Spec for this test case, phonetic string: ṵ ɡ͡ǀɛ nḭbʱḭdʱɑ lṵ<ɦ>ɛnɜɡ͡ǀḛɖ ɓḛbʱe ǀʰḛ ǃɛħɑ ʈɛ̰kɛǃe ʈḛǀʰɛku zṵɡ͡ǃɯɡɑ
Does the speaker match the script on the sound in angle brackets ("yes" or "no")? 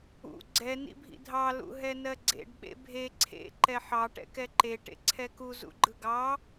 yes